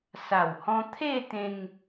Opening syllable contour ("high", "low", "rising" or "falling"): low